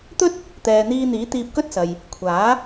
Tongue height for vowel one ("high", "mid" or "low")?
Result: mid